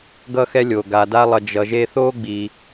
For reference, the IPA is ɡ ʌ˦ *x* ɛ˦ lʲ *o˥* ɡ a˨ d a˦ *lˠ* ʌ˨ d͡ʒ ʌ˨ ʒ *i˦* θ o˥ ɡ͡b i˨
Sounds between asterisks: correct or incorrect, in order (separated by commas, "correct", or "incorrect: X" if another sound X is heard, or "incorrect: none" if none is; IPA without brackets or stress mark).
correct, incorrect: o˩, correct, incorrect: e˦